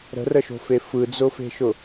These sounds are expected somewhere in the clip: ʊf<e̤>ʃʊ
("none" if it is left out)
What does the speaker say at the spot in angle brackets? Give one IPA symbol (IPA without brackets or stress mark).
e̤